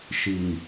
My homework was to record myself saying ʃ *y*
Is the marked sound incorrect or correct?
incorrect